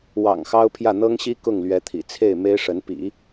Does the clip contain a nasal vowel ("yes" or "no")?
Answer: no